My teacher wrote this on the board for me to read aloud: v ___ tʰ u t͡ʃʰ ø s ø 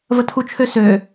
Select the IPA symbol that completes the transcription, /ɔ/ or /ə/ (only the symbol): ə